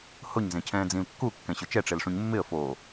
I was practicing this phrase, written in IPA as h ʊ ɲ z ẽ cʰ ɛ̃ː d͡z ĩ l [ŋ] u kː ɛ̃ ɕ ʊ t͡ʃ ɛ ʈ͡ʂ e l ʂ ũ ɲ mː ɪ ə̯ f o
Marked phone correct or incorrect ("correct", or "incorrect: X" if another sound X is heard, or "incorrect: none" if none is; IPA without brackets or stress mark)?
incorrect: kː